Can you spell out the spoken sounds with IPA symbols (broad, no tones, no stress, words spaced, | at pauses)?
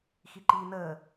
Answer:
xiǃiːnəː